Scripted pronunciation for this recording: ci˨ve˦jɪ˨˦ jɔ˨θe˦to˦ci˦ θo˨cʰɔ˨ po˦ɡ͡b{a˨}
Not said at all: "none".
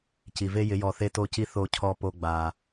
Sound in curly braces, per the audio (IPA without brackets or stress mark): a˨